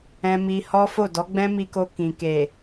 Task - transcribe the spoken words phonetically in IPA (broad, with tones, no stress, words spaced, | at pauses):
ɛ̃˧mi˧hɔ˦ fo˦˨dɔ˨˦ɡ͡bɛ̃˦ mi˧ko˧ kĩ˨ke˨